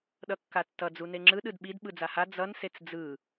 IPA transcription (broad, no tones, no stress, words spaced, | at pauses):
ɗʌkːatːʌ d͡zuneŋ͡ǁɯ ɗɯdɓid ɓɯd͡zaha d͡zʌn set͡sd͡zɯ